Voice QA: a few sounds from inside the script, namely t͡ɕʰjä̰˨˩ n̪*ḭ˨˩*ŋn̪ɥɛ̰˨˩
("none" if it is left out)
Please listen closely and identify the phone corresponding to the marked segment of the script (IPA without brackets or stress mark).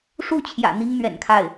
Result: i˥